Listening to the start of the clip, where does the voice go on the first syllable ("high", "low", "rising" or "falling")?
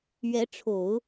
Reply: rising